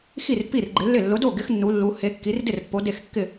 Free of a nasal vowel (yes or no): yes